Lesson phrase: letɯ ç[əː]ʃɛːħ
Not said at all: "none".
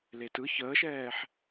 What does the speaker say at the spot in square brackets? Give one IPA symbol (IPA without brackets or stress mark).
əː